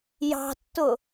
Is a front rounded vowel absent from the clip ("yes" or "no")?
yes